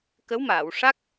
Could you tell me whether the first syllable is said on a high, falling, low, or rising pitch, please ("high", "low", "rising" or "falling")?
rising